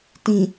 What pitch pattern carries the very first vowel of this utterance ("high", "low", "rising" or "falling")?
low